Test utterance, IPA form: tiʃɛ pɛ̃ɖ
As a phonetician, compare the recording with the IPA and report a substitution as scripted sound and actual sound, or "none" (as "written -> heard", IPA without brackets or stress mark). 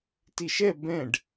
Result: p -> b